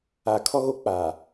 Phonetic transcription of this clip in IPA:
a˨ kʰ ɔ˦ ɣ o˦ k͡p a˨

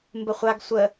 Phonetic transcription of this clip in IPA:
m b ə χʷ a ɡ sʷ ə

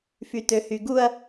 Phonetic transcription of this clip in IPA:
f y t ø h y ɡ u ɐ̯

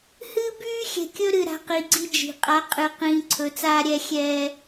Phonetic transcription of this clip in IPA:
h ɨː˦ b yː˦ xʲ ɛ̤˨ kʲ ɵ˦ ɾ ɨ˨ ɾ a̤˨ q i˨ ɡ͡ǀ i˦ d͡ʒ i̤˨ qʼ a˨˦ qʼ ɨ˨ q ĩː˨ ǀʰ ɵ˨ t͡s aː˦ ɾʲ ɛ˦ xʲ ɛː˦

